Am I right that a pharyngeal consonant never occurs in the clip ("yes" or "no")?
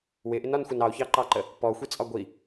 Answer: yes